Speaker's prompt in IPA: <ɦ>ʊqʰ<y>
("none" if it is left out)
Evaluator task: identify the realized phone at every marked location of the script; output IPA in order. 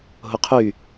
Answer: ɦ, y

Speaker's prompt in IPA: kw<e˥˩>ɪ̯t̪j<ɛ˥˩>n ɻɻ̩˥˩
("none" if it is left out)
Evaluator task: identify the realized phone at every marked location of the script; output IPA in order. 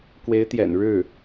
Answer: e˧˥, ɛ̰˨˩

